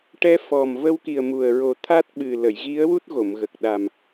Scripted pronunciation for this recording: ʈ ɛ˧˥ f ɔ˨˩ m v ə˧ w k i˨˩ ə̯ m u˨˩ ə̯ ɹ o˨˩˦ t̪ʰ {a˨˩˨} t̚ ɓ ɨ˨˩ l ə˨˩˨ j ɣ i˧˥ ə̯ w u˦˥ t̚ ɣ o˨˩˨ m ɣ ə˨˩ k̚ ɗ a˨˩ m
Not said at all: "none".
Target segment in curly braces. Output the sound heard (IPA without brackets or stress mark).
a˦˥